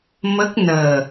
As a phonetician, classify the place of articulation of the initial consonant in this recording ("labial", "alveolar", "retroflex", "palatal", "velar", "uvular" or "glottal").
labial